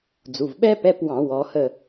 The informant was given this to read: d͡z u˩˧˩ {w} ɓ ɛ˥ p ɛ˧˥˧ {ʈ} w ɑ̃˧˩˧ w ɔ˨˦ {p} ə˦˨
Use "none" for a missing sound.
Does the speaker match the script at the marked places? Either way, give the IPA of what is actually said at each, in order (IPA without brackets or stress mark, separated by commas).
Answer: v, p, h